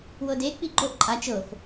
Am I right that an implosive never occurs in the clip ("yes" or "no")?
yes